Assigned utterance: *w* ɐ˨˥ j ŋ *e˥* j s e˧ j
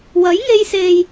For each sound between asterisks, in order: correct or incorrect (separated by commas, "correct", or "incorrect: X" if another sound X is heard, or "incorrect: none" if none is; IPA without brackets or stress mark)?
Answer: correct, incorrect: e˧